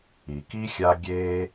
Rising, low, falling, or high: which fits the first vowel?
low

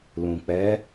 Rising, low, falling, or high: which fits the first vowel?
low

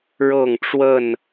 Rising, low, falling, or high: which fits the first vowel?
falling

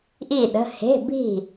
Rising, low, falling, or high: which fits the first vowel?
falling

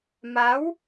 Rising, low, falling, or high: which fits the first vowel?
rising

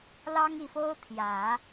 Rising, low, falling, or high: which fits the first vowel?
high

